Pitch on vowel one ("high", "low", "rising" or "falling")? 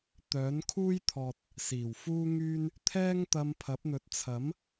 rising